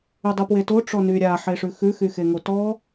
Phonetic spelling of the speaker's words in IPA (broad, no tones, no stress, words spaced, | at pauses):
ydˤupweto ʈ͡ʂɔnyɾʲa ħeʂʉxʉ xyxeŋotɔ